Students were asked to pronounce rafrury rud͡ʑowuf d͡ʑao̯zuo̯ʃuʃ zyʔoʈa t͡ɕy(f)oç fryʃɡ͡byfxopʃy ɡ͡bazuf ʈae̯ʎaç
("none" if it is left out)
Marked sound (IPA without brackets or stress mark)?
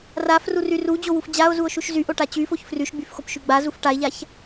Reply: f